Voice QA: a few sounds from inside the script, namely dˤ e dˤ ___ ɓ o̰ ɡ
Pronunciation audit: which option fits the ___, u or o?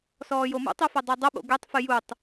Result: o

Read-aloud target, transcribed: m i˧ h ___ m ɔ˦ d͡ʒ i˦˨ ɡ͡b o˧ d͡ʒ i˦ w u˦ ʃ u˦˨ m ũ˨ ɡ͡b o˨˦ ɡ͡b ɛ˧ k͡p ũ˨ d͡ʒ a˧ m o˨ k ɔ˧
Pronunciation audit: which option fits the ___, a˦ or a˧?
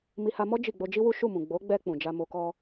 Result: a˧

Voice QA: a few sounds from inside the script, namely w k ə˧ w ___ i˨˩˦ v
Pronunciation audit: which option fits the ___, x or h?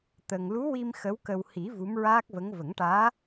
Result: h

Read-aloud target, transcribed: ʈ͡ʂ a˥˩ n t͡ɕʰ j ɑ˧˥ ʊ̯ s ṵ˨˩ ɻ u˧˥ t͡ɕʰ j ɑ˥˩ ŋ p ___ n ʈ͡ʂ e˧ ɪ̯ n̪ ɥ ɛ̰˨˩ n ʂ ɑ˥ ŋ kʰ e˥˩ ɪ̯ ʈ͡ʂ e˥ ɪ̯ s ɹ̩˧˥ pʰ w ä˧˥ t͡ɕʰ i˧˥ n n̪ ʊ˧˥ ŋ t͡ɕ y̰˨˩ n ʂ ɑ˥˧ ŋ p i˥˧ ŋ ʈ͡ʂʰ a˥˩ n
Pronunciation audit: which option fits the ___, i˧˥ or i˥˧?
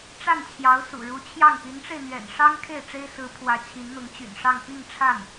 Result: i˧˥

